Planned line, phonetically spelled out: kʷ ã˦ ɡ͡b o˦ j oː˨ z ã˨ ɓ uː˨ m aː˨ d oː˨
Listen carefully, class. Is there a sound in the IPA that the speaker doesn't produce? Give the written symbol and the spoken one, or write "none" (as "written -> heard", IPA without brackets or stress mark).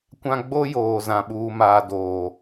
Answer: none